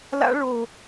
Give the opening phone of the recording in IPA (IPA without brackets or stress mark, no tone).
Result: l